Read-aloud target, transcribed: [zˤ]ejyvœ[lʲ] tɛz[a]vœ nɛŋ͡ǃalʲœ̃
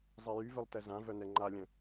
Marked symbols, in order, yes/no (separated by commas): yes, no, no